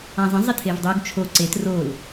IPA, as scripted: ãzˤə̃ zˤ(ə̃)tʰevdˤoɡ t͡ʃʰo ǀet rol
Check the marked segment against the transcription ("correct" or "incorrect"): incorrect